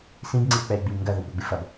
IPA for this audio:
s ĩ b ŋ͡ǀ i w k͡p ɛ y̯ ɡ͡b i m ŋ ɡ ɐ ð o b ɾ u ɡ͡b ɨ f ɐ b

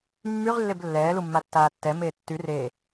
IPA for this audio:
mː y ʁ lː e b lː ɛː l u mː a tː aː tː ɛ m eː tː y r eː

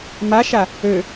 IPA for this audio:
m a ʃ a | ø

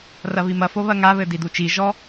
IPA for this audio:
r ɐ β i m ɐ f o β ɐ ŋ a β ɘ d i d u t͡ʃ i ʒ ɔ

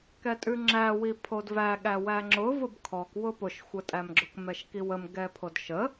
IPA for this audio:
k ɛ tʼ ʉ ŋ͡ǁ æ w i pʰ o d v æ ɠ æ w æ ŋ͡ǁ ʊ v ʊ b kʰ ɔ k w ʊ p ʊ ʃ xʷ ə tʼ æ m ɡ͡ǁ ʊ k m ɛ ʃ k i w ə m ɡ ɛ pʰ o d ʃ ə

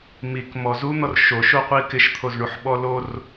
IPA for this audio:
m i k m ɔ z u n̪ ɔ r ʃ o ʃ o qʷ i k ɪ ʃ t̪ʰ o z ɳ u ħ ɓ ɔ l o r

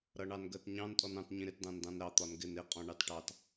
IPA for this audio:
ɾ ʌ ɳ ɑ n ɡ ɜ t ɲ ɑ̃ n tʼ ɔ n ɑ̃ t ɲ ĩ ɾ ɪ t d ɑ̃ n d ɑ̃ n ɾ ɑ t̪ ɒ n ɡ ɪ n ɪ qʼ ɔ̃ ɳ ɑ t ʈ ɑ t

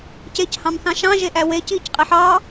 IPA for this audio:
c e c h ɑ̃ m θ ɑ̃ ʃ ɑ̃ ʒ e ʔ æ w e c iː c qʼ e ħ ɑ

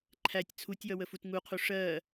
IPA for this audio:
ǃʰ æ tʲ t͡sʰ u tʲ j ʌ w ə f u t ŋ u qʰ u ʂ ɜ

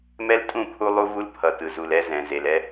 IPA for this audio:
m ɛ˦ l tʼ ũ˦˨ pʰ u˦ lˠ u˦ v u˦ l pʰ ʌ˨ t ɯ˨ z u˨ l ɛ˦ z ɛ̃˨ z e˨ l ɛ˦

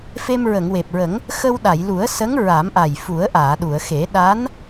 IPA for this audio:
f e˧ m ɹ ə˨˩˨ ŋ w e˨˩ p̚ ɹ ə˨˩˦ ŋ | x ə˧ w ɗ a˨˩˨ j l u˨˩˦ ə̯ s ə˧˥ ŋ ɹ a˨˩˦ m ʔ a˨˩ j f u˨˩˦ ə̯ ʔ aː˨˩˨ ɗ u˨˩˨ ə̯ x e˨˩˦ ɗ a˧˥ n

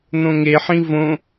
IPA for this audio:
n̪ õ ŋ e ħ ĩ v õ

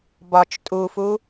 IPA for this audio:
b ɒ t͡ʃ tʼ u f u

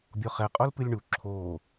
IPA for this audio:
bʲ ɔ χ ɛ qʼ o l p ɨ lʲ ɳ u ǁʰ oː

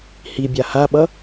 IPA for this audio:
h i bʲ a h a ɓ ʌ

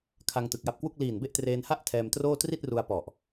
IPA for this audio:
kʰ a˧ ŋ t ɯ˨˩ k̚ j a˦˥ p̚ k w u˥˩ k̚ l iː˨˩ n b e˥˩ ʔ t r eː˧ n h a˥˩ ʔ tʰ ɛː˧ m t r oː˥˩ t r i˥˩ t̚ r u˧ a̯ p ɔ˨˩ ʔ

